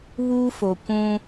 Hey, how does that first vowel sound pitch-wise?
high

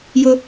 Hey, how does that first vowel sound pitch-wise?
high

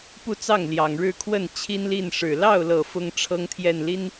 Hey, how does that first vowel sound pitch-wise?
falling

